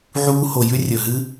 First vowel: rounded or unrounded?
rounded